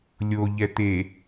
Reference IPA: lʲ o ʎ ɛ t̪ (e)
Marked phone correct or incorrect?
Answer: correct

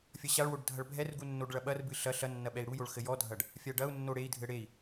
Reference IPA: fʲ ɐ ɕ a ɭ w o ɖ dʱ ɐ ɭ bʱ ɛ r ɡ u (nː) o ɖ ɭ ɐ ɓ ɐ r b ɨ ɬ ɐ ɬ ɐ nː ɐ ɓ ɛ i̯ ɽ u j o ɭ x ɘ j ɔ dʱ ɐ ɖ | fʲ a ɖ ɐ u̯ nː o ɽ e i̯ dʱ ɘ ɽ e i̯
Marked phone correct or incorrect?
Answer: correct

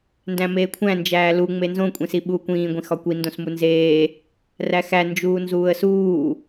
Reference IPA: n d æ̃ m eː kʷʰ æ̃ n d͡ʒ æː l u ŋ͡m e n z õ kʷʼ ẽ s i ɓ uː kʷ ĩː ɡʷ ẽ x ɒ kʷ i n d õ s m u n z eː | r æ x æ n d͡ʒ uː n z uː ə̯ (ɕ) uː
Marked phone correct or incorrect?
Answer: incorrect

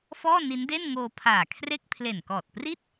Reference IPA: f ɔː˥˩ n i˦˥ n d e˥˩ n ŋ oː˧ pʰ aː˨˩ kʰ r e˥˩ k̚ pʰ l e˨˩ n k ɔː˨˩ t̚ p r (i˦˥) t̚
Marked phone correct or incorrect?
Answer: incorrect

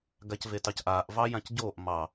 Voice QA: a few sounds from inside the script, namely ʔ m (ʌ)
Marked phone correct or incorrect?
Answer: incorrect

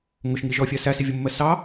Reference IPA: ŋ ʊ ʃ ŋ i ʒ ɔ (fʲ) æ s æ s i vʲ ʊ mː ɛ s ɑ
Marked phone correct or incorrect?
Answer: correct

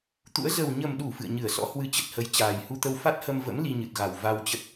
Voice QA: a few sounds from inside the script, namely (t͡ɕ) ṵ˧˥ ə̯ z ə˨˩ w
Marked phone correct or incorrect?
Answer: incorrect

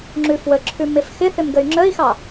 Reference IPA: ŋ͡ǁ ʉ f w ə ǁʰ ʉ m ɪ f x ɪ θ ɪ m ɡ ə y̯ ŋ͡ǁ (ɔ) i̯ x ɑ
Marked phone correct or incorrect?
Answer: incorrect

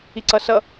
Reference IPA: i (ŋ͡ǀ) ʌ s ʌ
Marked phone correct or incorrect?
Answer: incorrect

